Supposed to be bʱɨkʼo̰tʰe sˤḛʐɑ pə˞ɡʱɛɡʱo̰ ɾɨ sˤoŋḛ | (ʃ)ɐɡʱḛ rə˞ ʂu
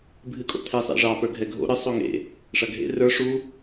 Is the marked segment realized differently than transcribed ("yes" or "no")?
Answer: yes